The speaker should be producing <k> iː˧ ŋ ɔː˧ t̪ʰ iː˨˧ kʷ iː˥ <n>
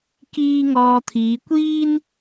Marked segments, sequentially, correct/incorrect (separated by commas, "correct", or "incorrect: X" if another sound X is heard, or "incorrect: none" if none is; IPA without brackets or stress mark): correct, correct